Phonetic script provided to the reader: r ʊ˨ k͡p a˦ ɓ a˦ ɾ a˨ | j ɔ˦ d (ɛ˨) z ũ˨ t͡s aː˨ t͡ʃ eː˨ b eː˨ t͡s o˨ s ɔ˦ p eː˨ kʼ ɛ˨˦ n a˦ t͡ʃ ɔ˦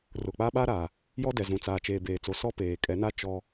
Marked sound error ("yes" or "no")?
no